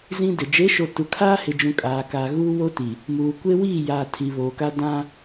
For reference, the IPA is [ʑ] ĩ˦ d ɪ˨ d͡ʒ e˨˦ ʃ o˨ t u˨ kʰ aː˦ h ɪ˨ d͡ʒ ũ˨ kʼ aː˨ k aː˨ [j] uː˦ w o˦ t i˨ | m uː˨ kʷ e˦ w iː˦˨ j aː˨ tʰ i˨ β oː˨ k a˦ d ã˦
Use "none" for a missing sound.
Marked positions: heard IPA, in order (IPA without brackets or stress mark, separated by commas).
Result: z, ɣ